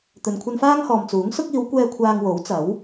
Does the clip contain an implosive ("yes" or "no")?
no